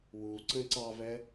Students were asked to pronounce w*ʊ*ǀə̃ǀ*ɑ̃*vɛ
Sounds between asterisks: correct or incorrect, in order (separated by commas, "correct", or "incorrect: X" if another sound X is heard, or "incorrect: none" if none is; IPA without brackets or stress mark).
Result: incorrect: u, incorrect: ɑ